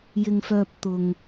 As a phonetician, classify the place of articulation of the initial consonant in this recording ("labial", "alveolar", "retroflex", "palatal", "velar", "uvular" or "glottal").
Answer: palatal